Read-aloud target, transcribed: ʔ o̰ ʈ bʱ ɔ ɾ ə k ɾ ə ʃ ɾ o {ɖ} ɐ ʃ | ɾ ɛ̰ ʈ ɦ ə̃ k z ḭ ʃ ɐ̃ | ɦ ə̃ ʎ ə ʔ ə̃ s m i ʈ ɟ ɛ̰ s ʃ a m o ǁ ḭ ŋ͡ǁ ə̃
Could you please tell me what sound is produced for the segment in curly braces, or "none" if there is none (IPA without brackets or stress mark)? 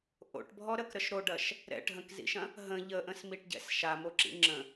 ɖ